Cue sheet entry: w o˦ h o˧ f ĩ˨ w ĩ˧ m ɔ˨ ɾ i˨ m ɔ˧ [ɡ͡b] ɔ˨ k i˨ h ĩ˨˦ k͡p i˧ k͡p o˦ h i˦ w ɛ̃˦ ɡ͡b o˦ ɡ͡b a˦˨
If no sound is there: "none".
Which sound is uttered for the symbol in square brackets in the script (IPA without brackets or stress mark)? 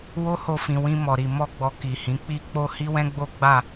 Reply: ɡ͡b